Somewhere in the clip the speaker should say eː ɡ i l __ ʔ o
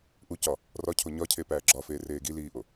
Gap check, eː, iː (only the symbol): iː